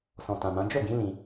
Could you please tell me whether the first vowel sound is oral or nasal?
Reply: nasal